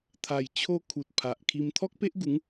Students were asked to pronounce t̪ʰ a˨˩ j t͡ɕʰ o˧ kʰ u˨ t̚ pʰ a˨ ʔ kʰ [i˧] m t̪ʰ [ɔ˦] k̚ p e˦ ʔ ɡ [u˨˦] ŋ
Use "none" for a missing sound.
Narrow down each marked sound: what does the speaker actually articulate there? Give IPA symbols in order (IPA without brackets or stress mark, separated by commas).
i˧, ɔ˦, u˨˦